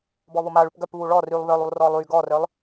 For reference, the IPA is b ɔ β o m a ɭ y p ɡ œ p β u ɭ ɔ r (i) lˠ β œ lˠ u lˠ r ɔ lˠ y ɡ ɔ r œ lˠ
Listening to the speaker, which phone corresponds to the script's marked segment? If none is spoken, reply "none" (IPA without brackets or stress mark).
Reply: y